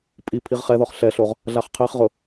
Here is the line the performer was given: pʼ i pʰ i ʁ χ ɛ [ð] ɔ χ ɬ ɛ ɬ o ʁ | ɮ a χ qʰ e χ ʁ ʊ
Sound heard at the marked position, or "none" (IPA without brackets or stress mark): ð